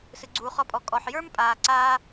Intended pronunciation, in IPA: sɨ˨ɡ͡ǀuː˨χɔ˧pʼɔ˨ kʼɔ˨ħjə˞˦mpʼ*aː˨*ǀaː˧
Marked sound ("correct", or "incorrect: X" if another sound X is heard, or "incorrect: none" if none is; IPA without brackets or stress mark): correct